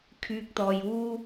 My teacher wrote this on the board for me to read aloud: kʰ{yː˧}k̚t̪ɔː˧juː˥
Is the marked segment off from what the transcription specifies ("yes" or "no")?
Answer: no